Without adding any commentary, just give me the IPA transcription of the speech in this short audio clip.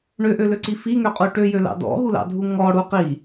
ɳ ø ʔ ø l ø ǀ i f i ŋ ø qʼ u ʈ ø j ø l ɑ̰ d ɔ̰ ɦ u l ɑ̰ dʱ u ŋ ɔ ɽ u q i

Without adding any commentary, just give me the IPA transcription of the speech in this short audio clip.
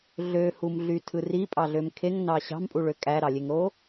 ɮ ø h u m ɮ y tʰ ɯ r i pʼ ɑ ɮ ø m kʰ e ŋ n ɑ ɕ ɑ̤ m pʼ u ɭ ø kʼ æ ɾ ɑ lʲ e ŋ ɾ o

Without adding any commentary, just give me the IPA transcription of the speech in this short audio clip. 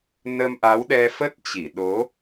n ə˧ m ʔ a˨˦ w ɗ ɛ˧ f ə˦˥ t̚ t͡ɕ i˧˩ ɗ o˨˦

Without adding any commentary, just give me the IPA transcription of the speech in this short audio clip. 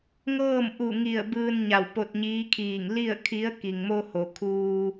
ŋ ɤː˥˨ m ʔ u˧˩ ŋ i˧˩ ə̯ b ɯː˧ n ɲ a˧˩ w p o˧ t̚ ɲ iː˧˥ kʰ iː˧˩ ŋ l i˥˨ ə̯ kʰ i˧˥ ə̯ k i˩ ŋ m o˧ h o˩ kʰ uː˧

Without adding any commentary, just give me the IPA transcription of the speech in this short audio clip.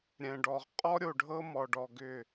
ɾʲ ɛ̃˨ ɖ ɔ˨ ʁ qʼ ɔ˦ ɾʲ o˨ ɖʱ ɤ˦ m ɔ˨ ɖ ɔ˨ ɡ ʏ˦˨

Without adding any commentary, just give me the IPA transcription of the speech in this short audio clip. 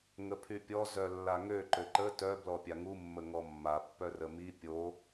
ŋ ə pʰ y pʲ ɔ z œ lː a ŋ ø ǃ ø ǃ ə t œ b l ɔ pʲ a ŋ u mː ə ŋ ɔ mː a pː œ r ə m i pʲ o

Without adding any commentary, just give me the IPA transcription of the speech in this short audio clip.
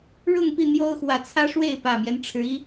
ɻ ʊ˥˨ ŋ p i˥˨ n̪ j o˦ ʊ̯ x w ä˨˦ t͡sʰ ä˦ ʂ w e˥˨ ɪ̯ p ä˨˩ m j ɛ˦ n ʈ͡ʂʰ ɻ̩˨˦ i˦

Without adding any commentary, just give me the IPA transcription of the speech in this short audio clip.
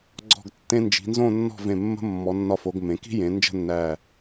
ɡ͡ǀ ɔ̤˧˩ ɡ tː ẽ˧ n d͡ʒ i̤˩˧ n z õ˥˧ nː ɔ̤˥˧ v ẽ˧˩ mː ə̤˥ mː ɔ˩˧ nː ɒ˧ f o˩˧ ɡ m ẽ˩˧ k i̤˥ j ẽ˩˧ n d͡ʒ ə̤˥˧ nː æ˧˩

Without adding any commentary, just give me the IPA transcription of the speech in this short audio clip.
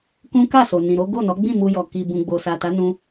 k ũ˦ k a˦˨ s o˨ n ĩ˨ ɾ o˨˦ ɡ o˦˨ n ɔ˨˦ ɡ͡b ĩ˦˨ m u˧ j ɔ˨ k i˨ b ũ˨ ɡ͡b o˨ s a˨ t a˨˦ n ũ˧

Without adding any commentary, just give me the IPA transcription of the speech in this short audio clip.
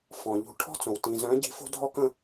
f ɔ̃˩ ʎ ṳ˨˥ ʈʰ ɔ̤˥ t͡s õ˩ w t ĩ˩ z œ̃˨˥ ɟ i̤˨˥ f o̤˥ dʱ ɔ˥ k ə̃˨˥

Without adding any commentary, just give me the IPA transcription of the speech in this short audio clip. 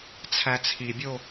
t͡sʰ æ t͡sʰ i bʲ o

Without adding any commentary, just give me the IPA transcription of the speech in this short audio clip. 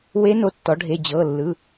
w e˧˥ n o˩˧˩ tː ɔ˩˧ ɖʱ e˩˧˩ d͡ʑ ɤ˩˧˩ lː ɯ˩˧˩

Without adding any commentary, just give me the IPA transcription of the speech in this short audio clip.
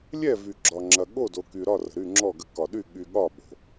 lʲ ɛ˥˨ v y˨ ɡ͡ǁ ɒ˨ ŋ͡ǁ ɐ˨ ɠ o˥˨ d o˨ k y˨ ɾ ɒ˥˨ r ə̤˨ ɾ y˥˨ ŋ͡ǁ ɔ˥˨ ɡ ə˥˨ k ɒ˨ ɗ y˥˨ ɠ y˨ ɠ ɒ˥˨ ɓ o̤˨

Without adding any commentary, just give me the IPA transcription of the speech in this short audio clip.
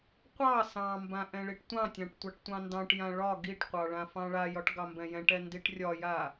qʷ ɑ s ɑ̃ m b ã ʔ ɛ̃ ɭ i ʈ tʷ ɑ̃ tʲ ɑ̃ ʈ tʷ ɑ ʈ tʷ ɑ̃ n d ɑ̃ ʈ j ã ɭ ɒ ɡ i ʈ qʷ ɑ ɭ ã f ɑ̃ ɭ a j ɒ ʈ ɡ ɑ m b ɛ̃ j ɛ̃ ʈ ɛ n d i ʈ rʲ ɒ j a

